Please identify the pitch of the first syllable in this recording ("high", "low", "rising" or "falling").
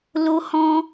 high